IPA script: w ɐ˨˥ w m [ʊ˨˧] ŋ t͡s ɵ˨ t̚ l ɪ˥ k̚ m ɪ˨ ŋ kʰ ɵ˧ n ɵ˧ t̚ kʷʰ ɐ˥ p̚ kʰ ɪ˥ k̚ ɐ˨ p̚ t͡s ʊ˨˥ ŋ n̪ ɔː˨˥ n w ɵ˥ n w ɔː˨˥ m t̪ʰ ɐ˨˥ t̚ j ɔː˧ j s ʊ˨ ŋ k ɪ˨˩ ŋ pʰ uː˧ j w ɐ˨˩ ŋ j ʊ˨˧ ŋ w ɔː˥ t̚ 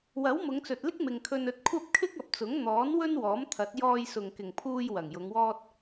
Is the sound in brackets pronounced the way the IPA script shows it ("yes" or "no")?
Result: yes